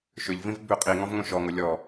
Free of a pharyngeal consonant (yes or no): yes